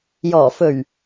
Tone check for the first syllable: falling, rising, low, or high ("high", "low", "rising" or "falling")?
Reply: low